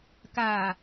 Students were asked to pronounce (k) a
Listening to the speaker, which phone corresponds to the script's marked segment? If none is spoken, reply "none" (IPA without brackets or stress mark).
k